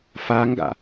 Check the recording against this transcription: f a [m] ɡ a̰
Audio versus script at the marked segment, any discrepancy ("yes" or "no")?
yes